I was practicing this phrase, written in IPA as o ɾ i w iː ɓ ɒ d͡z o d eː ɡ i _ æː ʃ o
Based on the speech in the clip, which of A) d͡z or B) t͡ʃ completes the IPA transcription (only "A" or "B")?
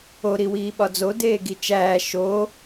B